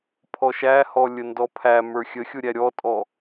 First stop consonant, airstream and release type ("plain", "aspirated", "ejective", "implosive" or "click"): aspirated